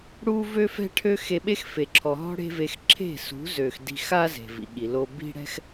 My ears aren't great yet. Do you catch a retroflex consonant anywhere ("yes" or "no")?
yes